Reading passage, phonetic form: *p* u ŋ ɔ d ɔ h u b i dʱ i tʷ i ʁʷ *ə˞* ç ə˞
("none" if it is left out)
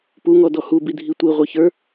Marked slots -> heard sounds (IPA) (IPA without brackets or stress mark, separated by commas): p, ə˞